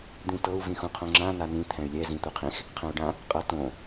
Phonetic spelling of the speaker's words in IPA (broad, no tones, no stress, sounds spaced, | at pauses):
d̪ ĩ t ɤ u̯ v ĩ x ũ qʰ õ ŋ͡ǁ ã n a n ĩ t̪ʰ ɛ̃ y̯ lʲ ɛ z ĩ t̪ u qʰ ĩ x | qʰ ɛ̃ u̯ ɖ ã | qʼ ɤ t õ